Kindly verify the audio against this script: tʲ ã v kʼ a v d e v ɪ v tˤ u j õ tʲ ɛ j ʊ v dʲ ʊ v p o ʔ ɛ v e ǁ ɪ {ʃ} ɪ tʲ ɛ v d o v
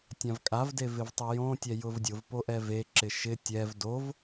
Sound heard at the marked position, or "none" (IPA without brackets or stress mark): ʃ